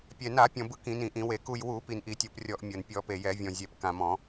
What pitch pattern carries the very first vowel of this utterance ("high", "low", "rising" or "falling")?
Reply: low